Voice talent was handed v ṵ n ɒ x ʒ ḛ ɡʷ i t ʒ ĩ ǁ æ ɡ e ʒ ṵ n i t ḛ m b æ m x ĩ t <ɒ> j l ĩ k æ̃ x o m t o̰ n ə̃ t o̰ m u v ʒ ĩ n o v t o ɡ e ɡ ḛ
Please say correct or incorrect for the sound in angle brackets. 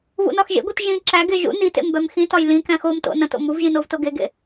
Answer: correct